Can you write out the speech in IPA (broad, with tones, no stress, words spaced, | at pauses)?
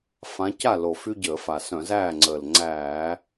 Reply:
fã˨˦ca˥˩lo˨˩ fy˦ɟəː˧˩˧ fa˨˩sœ̃˧˩˧zæː˥˩ŋ͡ǀəː˨˩l ŋ͡ǀæː˧˩˧